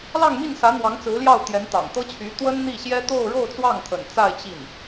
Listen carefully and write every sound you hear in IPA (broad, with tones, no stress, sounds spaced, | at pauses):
l ɑ˥˧ ŋ m i˥˩ n s ä˧˥ n̪ w ɑ˧˥ ŋ t͡s ɹ̩˧˥ l j ɑ˥˩ ʊ̯ t̪ j ɛ˧˥ n t̪ ɑ̰˨˩ ŋ t̪ ɤ˥ t͡ɕʰ y˧˥ t̪ w ə˥ n n̪ i˥˩ ɕ j ɛ˥ t̪ o˥˧ ʊ̯ ɻ o˥˧ ʊ̯ t͡s w ɑ˥˩ ŋ t̪ʰ ə̰˨˩ n t͡s a˥˧ ɪ̯ t͡ɕ i˥˩ n